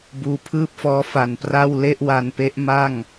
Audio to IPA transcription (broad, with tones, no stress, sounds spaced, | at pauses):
b uː˧ pʰ ɯː˥˩ p̚ f ɔː˦˥ f a˨˩ n p r a˥˩ w l e˥˩ ʔ w a˧ n p e˦˥ ʔ m a˥˩ ŋ